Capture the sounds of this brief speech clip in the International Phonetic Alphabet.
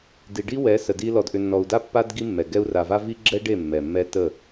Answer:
di˨ɖi˦wɛ˨˦ sə˨di˦ lɔ˨dʔʏ˨nːɔ˨u̯da˦ pːa˦d ɡi˦mːɛ˨ ɡɛ˦u̯ ra˨va˦ vi˦ɡ͡ǁɛ˦ ɖe˦˨ mːɛ˨mːɛ˦tə˦˨

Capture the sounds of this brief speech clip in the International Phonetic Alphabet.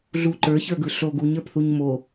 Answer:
ɮu ǃə˞çə˞ɡɯ ɬoɡ uɲə˞pθuɲ mo

